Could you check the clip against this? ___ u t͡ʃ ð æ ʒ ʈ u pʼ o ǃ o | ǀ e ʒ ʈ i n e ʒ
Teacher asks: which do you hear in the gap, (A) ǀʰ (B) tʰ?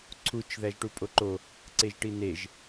A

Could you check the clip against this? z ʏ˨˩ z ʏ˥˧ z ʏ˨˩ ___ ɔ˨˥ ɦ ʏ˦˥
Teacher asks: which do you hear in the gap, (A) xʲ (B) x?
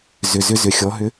A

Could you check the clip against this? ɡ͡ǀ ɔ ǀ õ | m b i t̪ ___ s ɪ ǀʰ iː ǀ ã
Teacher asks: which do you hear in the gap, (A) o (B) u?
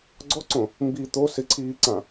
A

